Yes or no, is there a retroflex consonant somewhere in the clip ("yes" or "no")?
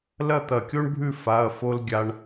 yes